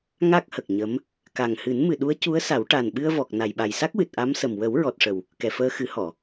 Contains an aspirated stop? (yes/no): no